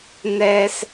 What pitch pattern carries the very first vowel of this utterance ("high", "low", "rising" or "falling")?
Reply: high